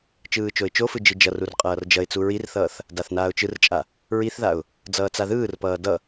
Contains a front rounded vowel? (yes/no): no